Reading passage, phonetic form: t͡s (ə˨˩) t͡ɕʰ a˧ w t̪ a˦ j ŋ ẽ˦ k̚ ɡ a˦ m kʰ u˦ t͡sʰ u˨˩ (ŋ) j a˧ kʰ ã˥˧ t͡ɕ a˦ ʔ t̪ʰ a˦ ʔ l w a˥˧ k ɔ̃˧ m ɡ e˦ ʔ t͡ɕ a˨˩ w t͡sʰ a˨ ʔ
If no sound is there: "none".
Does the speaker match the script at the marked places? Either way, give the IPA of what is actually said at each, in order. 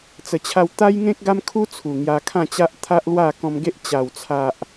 ə˨˩, ŋ

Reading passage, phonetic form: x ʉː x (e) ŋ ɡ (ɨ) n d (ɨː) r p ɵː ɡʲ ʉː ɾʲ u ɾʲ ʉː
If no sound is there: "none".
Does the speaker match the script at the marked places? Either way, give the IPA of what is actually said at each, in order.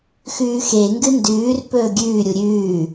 e, ɨ, ʉː

